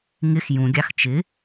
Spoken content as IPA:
ŋ ɪ x j ũ ɡʲ ɑ x t͡ʃ ɪ

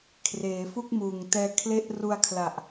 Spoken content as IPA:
kʰ r eː˩˦ f u˥˩ k̚ m uː˨˩ ŋ t ɛː˧ kʰ l e˦˥ ʔ r u˧ a̯ kʰ l a˨˩ ʔ

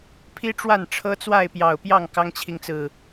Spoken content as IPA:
pʰ i˦ ʈ͡ʂ w a˥˨ n ʈ͡ʂʰ ɤ˦ t͡s w a˥˨ ɪ̯ p j ɑ˨˩ ʊ̯ p j ɑ˥˨ ŋ k ɑ˦ ŋ t͡ɕʰ i˨ ŋ t͡s ɹ̩˨˩

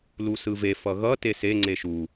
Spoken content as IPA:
l u s ɯ v e f ʌ ɣ ʌ t e s e ŋ͡ǀ e ʃ u

